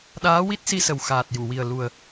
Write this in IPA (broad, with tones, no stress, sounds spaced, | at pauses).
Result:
ɗ aː˧˥ w i˦˥ t̚ s i˧ s ə˨˩ w x aː˨˩ t̚ j u˨˩˨ w i˨˩ ə̯ l u˨˩ ə̯